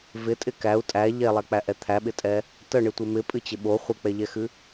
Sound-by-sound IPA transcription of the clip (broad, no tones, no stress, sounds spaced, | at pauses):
v ɪ tʼ ɪ k æ u̯ tʼ æ ʎ ɛ lˠ æ k͡p æ ʔ ɛ t̪ʰ æ ɓ ɪ tʼ ɛ | t ə ɳ ɨ tʷ ɪ m ɪ pʼ ɨ t͡ɕ ɪ ɓ o χʷ ɪ k͡p ɛ ʎ ɛ x ɨ